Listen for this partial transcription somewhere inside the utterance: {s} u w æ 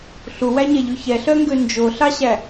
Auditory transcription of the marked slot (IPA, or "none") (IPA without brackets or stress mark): ɬ